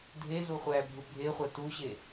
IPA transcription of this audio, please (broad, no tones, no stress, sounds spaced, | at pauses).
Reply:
dʱ e z u χʷ æ bʱ u bʱ e χʷ a t u ɕ e